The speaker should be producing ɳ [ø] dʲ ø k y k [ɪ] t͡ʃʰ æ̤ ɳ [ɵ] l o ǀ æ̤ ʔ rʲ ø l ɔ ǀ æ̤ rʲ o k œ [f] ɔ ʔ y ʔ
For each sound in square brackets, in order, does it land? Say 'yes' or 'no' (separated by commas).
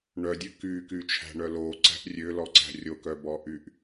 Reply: no, no, no, no